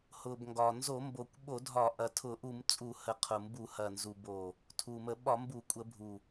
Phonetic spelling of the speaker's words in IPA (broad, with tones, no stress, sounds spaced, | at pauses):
h ʊ˨˩ b ŋ ɡ ɒ˨˩ n z o˧˩˧ m b o˨˩ kʷ ɓ o˧˩˧ dʱ ɒ˧˩˧ ʔ ɐ˨˩ tʰ ʊ˧˩˧ ʔ u˧˩˧ m t͡sʼ u˧˩˧ h ə˨˩ qʰ ʊ˨˩ m b u˧˩˧ h ɐ˨˩ n z u˨˩ b o˨˩ | tʰ u˨˩ m ə˧˩˧ ɓ ɒ˧˩˧ m b u˧˩˧ kʷʼ ə˧˩˧ bʱ u˨˩